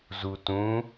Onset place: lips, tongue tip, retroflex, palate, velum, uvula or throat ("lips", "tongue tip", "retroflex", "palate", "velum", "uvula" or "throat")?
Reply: tongue tip